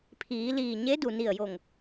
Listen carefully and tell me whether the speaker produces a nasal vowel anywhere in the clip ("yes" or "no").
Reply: no